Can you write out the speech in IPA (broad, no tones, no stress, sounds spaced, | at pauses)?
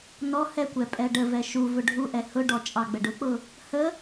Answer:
n ɔ h ɛ kʷ ɛ pʼ ɛ ɖ ə v ɛ ʃ u v ʊ ɖʱ u ʔ ɛ h ʊ ɖ ɔ t͡ʃʼ ɑ ɡ͡b ə ɖ ʊ k͡p ʊ | h ə